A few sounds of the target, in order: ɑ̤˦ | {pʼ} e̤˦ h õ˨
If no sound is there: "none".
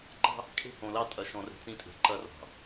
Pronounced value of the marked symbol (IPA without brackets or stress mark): kʼ